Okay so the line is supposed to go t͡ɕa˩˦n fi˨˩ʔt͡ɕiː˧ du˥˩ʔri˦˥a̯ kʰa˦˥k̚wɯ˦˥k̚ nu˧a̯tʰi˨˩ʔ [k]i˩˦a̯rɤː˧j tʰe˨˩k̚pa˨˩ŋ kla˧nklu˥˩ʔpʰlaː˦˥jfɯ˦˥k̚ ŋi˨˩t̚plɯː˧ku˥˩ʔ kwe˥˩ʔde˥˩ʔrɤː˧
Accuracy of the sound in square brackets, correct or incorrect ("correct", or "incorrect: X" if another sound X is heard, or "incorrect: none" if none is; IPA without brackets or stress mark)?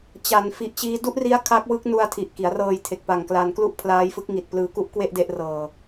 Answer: correct